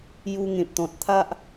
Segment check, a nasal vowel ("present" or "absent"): present